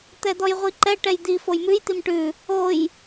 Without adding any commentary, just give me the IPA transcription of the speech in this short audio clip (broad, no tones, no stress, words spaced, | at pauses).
t̪ɛd̪ɔjʁʷiǃɛ ʈɛjd̪i fojmʉj t̪imʈʉ | oj